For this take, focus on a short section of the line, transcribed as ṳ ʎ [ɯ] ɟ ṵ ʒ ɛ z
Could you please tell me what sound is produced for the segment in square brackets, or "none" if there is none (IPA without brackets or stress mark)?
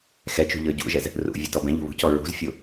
ɤ